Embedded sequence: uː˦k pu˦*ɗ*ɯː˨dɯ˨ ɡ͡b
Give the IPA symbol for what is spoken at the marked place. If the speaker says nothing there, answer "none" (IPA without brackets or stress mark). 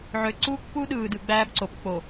ɗ